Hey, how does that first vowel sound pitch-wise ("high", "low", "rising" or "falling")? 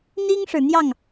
high